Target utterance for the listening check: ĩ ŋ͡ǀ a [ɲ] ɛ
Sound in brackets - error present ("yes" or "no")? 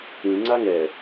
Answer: yes